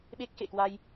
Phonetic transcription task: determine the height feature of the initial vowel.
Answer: mid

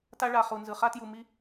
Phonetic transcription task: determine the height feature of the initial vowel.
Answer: low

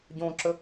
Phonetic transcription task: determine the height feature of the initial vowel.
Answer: mid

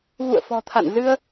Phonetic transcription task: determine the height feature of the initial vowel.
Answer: high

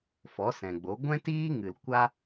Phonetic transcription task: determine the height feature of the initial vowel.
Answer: mid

